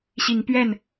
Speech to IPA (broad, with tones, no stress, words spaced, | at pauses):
ɕi˨˦ŋpɥɛ˥˨n